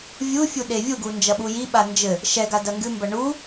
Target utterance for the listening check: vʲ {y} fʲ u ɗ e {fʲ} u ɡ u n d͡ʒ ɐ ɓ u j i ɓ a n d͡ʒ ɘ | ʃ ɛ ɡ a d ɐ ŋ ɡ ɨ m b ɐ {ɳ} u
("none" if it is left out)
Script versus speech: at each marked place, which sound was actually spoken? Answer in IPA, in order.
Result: u, vʲ, ɳ

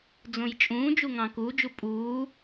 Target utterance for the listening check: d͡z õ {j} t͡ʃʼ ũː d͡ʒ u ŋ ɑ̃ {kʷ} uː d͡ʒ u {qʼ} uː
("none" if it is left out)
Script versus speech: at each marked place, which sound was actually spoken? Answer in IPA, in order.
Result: j, k, pʼ

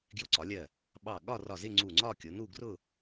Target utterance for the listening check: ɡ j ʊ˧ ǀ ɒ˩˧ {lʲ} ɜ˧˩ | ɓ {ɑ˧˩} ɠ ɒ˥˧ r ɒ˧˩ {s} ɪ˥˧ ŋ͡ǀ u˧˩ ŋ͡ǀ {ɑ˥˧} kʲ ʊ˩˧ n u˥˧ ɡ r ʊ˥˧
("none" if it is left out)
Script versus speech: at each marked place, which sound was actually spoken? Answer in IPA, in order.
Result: lʲ, ɑ˧˩, z, ɒ˥˧

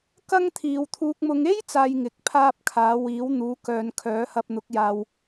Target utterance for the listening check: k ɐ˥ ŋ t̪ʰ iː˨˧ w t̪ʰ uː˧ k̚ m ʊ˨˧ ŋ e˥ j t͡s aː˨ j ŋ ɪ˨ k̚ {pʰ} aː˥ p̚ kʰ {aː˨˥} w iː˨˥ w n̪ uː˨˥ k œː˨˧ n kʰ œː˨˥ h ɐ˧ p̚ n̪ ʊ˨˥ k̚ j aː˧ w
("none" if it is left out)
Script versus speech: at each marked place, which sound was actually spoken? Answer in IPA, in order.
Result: pʰ, aː˨˥

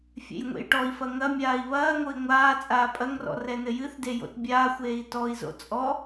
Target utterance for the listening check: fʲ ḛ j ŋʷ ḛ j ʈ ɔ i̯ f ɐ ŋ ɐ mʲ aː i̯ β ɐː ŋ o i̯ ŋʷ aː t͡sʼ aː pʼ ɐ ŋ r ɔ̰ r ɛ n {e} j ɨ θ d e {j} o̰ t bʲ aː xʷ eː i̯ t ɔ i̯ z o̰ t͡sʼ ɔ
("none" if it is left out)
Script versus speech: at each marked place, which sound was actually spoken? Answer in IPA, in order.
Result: ɘ, j

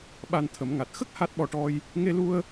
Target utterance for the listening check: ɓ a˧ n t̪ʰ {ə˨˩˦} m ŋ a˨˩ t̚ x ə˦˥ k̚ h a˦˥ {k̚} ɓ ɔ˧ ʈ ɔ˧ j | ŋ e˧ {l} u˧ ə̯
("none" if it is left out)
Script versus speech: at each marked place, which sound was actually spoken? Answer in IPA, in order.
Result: ə˨˩˦, t̚, l

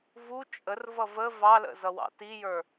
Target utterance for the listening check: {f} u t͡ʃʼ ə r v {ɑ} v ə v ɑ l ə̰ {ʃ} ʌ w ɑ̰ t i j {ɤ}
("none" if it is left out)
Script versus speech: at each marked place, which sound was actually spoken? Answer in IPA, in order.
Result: v, ʌ, z, ə˞

